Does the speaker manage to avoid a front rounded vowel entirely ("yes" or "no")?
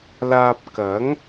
yes